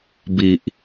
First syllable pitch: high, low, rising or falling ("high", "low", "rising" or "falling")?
low